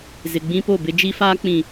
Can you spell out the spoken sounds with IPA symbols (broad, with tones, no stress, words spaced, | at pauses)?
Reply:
zɪ˨ɡ͡bĩ˦po˦˨bɪ˦ d͡ʒi˦faː˦ k͡pĩ˨